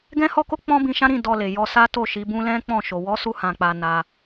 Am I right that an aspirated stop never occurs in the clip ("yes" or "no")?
yes